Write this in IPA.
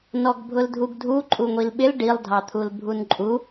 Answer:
n ɔ ɡ bʱ ʊ l dʱ u ɡ dʱ u ǃʼ u ŋʷ i l ɓ ɪ l ɖ i lˠ dʱ ɑ t̪ʰ u l bʱ u n ǃʼ u

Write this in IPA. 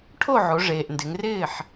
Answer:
ʈʰ o˥˩ ʕ o˩˧ ʐ eː˩ ʔ n d ɪ˩˧ ŋ r ɪː˥˩ ħ

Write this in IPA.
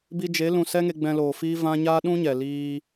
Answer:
b i˧ d͡ʒ e˨˦ l ũ˨ s ɛ˦ ŋ e˧ ɡ͡b ɛ̃˧ l oː˨ f iː˦ v ã˦ ɲ aː˦ ɗ ũ˦ ɲ ɛ˨ l iː˧

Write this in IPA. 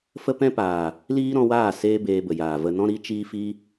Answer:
f ə˦ p ɛ̃˦ p aː˨ | l iː˦ ɾ ɔ̃˧ w aː˦˨ s eː˦ b eː˧ b ə˨ j aː˨ v ə˧ n ɔ̃˦ ɾ i˦ t͡ʃ iː˦ f i˦

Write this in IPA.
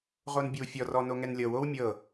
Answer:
ʁ o n bʲ o w fʲ ɔ r ɔ n o ŋ ɛ n lʲ ɤ w o w mʲ ɤ

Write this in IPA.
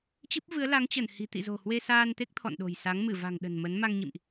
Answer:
t͡ɕ ɨ˦˥ p̚ v ɨ˨˦ ə̯ l a˨˦ ŋ t͡ɕ ə˧˩ n h i̤˨˩ t̪ ḭ˧˨ z o̤˨˩ h w e˧ s aː˧ n t̪ e˦˥ k̚ t̪ʰ ɔ̰˧˨ n ɗ o̤˨˩ j s a˨˦ ŋ m ɨ˧˩ v a̤˨˩ ŋ ɗ ə̤˨˩ n m ə˨˦ n m a˧ ŋ ɲ ḭ˧˨ m ʔ

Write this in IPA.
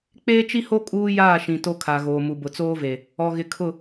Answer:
k͡p eː˦ t͡ʃ i˦ h o˦ kʼ uː˦ j aː˦˨ ʃ ĩ˨ t o˦ kʰ a˨ ɣ oː˨ m u˨ b ʊ˨ t͡s oː˦ v e˨ | ɔ˨ ɣ ɪ˨ kʰ ʊ˦˨

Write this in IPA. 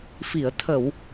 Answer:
f i˨˩˨ ə̯ t̪ʰ ə˨˩˨ w

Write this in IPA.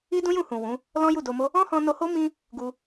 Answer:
i˦ d ũ˦ j ũ˦˨ h ũ˨ w ũ˨˦ | l ɔ̃˦ j u˦˨ d o˧ m o˦ | ɔ̃˦ h ɔ̃˧ n o˧ h o˦ m ĩ˦ | ɡ u˧

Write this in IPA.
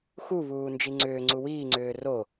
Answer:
x u β uː n d͡ʒ i ŋ͡ǀ ʏː ŋ͡ǀ u w iː ŋ͡ǀ ʏː r o

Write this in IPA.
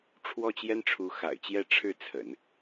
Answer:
ʈ͡ʂʰ w ɔ˥˩ t͡ɕ j ɛ˥ n ʈ͡ʂʰ u˧˥ x a̰˨˩ ɪ̯ t͡ɕ j ɛ˥˧ ʈ͡ʂʰ ɻ̩˥˩ t͡sʰ ə̰˨˩˦ n

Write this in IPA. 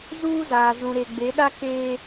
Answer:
z uː˦ z aː˨ z ũ˨ ɾ e˨ ɡ͡b e˨˦ ɗ a˦ k eː˦

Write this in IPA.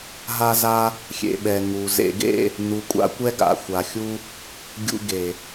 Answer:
ɦ a˧ z a˧ | xʲ ḛ˨ ɓ ɛ˨ ŋ u˨ z ḛ˨ ɡ ḛ˦˨ | n u˨ kʷʼ a̰˦ kʷ ɛ˦ ɡ a̰˨ xʷ a˨ xʲ u˧ | ɡʲ ṵ˧ ɡ e˨

